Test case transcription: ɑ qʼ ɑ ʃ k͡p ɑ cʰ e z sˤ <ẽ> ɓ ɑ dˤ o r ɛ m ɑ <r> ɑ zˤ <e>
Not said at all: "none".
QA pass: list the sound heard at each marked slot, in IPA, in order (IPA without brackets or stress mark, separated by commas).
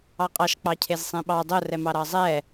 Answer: ẽ, ɾ, ɛ